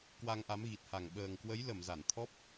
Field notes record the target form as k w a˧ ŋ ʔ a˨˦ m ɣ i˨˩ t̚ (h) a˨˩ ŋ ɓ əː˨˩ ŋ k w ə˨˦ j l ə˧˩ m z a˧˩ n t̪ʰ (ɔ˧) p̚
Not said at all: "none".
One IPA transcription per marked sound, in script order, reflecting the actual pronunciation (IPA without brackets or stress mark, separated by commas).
h, ɔ˦˥